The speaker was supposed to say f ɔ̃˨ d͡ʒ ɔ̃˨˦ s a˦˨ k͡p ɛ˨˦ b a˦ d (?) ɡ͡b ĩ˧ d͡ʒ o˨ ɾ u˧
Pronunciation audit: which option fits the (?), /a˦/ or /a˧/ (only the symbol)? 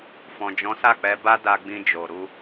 a˧